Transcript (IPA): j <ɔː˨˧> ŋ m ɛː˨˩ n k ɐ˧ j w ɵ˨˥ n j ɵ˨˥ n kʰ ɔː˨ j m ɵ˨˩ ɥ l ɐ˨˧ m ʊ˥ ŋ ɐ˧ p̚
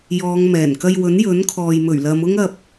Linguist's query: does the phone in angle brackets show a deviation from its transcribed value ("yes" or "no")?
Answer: no